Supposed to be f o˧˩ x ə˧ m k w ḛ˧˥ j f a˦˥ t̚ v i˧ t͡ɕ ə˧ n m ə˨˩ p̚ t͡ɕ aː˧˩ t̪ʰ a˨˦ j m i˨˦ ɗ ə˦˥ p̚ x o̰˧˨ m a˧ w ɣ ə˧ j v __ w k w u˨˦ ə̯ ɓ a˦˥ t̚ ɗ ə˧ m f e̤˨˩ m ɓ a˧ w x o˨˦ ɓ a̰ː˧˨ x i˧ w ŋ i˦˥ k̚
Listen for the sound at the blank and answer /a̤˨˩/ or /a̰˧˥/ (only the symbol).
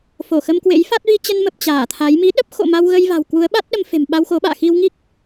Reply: a̤˨˩